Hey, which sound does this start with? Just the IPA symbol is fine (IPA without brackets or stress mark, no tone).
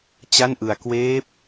t͡ɕ